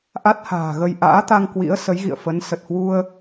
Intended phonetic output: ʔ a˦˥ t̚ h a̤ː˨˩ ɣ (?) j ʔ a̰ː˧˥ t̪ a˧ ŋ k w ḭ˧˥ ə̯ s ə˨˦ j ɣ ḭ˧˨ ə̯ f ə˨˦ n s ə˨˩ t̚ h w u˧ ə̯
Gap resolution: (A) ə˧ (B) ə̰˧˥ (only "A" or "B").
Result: A